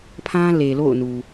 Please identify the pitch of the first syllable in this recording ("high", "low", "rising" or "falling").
high